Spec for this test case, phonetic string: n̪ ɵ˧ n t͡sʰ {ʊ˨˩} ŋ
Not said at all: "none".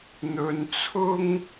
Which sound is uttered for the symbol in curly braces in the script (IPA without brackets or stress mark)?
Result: ʊ˥